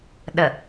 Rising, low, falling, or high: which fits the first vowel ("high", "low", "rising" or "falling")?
low